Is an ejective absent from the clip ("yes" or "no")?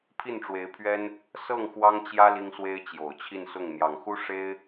yes